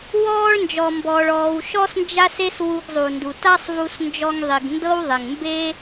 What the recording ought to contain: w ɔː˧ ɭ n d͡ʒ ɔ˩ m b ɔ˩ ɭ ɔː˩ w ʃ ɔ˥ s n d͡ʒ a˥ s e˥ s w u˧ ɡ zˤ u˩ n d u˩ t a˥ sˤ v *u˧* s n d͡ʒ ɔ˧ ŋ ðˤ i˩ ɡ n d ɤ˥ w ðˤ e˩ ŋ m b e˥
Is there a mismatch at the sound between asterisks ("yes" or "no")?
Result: no